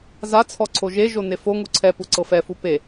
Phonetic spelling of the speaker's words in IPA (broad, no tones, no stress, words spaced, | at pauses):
zat͡sʰɔ ǀʰoʒeʒo nefoŋu ǀʰɛpu ǀɤfɛfu pe